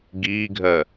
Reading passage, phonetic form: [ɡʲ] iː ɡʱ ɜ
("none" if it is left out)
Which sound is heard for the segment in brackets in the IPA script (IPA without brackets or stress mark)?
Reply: ɡ